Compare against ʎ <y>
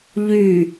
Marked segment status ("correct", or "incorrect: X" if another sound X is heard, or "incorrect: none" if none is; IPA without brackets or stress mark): correct